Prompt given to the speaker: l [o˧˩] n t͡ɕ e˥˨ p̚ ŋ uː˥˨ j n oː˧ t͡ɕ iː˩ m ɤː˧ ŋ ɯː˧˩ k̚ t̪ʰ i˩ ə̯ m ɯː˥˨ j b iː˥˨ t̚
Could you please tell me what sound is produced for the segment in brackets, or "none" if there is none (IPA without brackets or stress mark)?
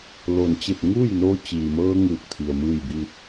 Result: o˧˩